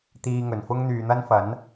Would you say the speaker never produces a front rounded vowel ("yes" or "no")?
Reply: no